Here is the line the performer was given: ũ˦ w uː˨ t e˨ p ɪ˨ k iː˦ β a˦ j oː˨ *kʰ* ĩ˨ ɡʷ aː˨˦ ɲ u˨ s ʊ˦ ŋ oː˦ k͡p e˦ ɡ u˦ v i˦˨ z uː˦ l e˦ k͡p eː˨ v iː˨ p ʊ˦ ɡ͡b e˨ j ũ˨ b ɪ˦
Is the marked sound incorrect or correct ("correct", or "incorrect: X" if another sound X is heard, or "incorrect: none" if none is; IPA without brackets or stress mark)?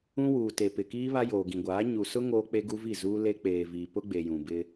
incorrect: ɡ